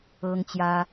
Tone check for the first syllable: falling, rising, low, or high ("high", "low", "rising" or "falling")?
high